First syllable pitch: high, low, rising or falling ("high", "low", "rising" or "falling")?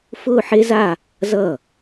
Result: falling